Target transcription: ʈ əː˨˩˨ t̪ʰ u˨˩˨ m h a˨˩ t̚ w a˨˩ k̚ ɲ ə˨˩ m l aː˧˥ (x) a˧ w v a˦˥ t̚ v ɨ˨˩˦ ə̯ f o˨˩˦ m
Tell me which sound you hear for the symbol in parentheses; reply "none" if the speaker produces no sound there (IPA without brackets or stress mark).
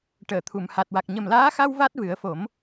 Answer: x